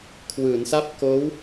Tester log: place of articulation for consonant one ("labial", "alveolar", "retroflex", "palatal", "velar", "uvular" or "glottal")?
velar